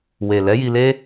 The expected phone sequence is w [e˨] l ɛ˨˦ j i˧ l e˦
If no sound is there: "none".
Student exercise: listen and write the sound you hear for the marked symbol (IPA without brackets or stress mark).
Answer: e˨